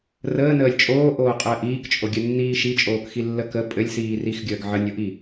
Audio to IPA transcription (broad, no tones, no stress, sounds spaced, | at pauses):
r əː n əː lʲ t͡ʃʼ oː ʔ oː qʼ əː ʔ iː k t͡ʃʼ o ɡʲ ɘ nː iː ʃ i t͡ʃʼ oː k x i lː ə k ə pʼ ɘ lʲ s iː r i x ɡʲ əː ɡ ʕ ə nʲ o ʔ i